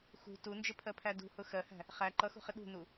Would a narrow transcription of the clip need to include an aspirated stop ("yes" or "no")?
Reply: yes